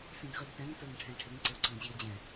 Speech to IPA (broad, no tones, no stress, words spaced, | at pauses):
sĩɡʁiɡtɛ̃ŋ tə˞ŋʈʰɛ̃ʈʰɪŋ ǀɪʊ̯ǀəŋʑiə̯d͡ʑɛ̃